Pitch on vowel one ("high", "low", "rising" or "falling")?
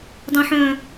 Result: low